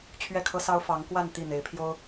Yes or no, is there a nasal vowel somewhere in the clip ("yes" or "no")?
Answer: no